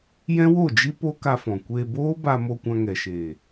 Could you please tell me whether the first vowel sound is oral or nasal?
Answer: nasal